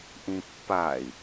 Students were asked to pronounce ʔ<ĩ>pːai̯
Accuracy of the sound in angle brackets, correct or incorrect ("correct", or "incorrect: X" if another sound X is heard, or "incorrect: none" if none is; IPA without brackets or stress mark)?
correct